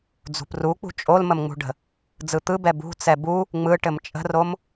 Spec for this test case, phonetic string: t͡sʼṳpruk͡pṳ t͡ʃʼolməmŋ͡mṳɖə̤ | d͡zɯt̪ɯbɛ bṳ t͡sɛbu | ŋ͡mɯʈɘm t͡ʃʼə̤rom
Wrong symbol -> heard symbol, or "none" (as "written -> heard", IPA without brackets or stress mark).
t͡sʼ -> d͡z